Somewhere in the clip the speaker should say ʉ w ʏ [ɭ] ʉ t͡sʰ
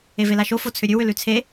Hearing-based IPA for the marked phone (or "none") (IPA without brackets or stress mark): l